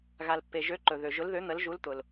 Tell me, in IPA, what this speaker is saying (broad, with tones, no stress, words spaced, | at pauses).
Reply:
ɣa˨lpːe˨ʒø˨˦ ǃɵ˨ ðø˨ʒʊ˨˦lðø˨˦ n̪ə˨˦lʒu˨˦lt̪ʊ˨l